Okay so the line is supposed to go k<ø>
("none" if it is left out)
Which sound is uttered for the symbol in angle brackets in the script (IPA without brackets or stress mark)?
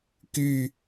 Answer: y